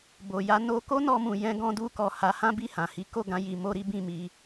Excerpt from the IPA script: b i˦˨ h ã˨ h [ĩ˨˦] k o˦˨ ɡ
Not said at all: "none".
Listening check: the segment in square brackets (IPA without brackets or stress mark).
i˨˦